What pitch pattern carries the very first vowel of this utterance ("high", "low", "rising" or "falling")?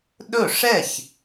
falling